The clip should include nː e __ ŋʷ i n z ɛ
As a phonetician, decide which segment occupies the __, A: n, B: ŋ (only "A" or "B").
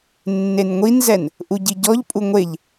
A